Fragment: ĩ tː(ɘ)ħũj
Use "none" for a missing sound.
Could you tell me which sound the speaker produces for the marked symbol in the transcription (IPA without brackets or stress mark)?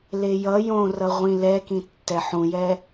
ɛ